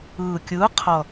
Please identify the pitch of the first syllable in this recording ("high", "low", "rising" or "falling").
low